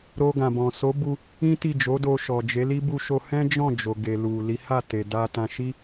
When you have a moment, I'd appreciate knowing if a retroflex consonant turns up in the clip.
no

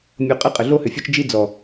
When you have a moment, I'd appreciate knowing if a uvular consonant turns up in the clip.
yes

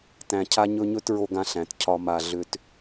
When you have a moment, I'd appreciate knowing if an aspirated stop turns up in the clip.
yes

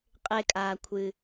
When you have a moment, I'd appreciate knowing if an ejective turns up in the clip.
yes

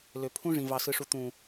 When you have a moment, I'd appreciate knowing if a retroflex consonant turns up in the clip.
yes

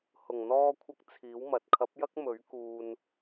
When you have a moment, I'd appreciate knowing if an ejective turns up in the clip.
no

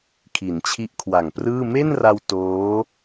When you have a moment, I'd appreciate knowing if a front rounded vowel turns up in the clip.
no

